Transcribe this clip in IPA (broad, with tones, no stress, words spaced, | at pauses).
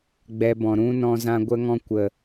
ɡ͡bɛ˧bɔ̃˨ ɾũ˦nɔ̃˧ zã˦ɡʷə˦ŋɔ̃˦ kʷə˨